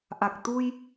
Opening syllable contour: low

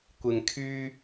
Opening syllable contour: low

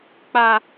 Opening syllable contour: high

